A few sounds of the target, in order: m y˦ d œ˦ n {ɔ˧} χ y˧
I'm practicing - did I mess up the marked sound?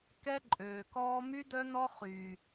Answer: yes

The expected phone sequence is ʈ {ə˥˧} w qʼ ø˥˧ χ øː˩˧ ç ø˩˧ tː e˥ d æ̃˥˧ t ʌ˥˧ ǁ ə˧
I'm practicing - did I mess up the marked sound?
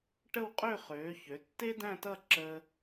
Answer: no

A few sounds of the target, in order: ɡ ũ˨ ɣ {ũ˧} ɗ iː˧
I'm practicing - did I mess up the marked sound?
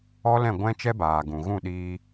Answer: yes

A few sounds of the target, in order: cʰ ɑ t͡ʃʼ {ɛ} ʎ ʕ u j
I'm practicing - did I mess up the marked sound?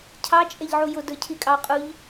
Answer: no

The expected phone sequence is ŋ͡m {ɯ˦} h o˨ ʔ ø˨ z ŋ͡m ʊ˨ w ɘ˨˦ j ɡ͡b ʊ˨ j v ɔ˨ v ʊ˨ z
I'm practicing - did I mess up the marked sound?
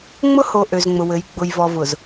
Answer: yes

